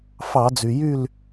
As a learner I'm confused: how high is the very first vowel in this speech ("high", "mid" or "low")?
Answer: low